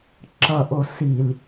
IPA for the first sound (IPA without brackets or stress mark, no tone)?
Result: ǁ